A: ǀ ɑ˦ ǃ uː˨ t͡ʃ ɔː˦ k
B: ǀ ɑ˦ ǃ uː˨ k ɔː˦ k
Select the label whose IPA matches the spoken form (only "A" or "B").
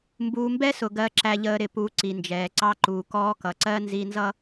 B